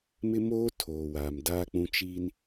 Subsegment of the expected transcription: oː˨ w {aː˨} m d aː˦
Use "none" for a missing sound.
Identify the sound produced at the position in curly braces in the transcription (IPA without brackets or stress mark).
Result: aː˨